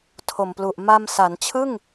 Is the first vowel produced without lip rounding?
no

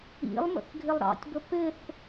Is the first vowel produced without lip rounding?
yes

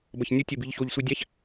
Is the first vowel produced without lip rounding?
yes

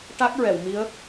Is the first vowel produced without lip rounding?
yes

